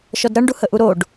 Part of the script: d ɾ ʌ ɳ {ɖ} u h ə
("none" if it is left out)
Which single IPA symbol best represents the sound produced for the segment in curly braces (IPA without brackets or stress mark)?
ɖ